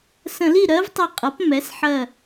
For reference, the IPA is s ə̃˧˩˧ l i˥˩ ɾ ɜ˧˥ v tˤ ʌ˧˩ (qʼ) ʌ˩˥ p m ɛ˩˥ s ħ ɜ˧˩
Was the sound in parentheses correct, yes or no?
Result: yes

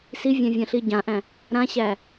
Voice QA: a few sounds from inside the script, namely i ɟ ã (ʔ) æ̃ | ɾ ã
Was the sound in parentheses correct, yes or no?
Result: yes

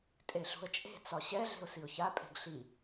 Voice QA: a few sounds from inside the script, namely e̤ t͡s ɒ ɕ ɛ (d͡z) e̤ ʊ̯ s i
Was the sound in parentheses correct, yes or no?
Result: no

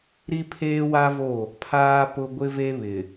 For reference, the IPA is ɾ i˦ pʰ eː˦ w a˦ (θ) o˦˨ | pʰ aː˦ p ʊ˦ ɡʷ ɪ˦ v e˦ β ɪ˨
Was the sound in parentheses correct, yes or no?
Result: no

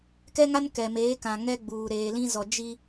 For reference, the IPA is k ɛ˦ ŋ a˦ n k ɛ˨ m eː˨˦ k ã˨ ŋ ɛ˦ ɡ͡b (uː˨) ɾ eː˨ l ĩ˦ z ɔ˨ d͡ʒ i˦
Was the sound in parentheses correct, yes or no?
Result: yes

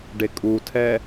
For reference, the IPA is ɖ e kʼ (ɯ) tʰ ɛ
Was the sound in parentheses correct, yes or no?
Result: no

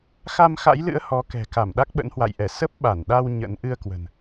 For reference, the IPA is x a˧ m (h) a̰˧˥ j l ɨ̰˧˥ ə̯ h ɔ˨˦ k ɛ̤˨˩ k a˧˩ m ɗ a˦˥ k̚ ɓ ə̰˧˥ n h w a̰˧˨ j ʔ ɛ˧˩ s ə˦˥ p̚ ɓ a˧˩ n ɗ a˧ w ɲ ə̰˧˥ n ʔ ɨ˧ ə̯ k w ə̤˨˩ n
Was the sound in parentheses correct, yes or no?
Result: no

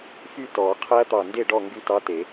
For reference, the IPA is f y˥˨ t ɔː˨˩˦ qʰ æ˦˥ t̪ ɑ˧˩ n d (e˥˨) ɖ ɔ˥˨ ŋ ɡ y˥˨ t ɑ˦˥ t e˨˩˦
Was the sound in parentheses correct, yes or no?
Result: yes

